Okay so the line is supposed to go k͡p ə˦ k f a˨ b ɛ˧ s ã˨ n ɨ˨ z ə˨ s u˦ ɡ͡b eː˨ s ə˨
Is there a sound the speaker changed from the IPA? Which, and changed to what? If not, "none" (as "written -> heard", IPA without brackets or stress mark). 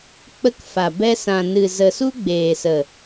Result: none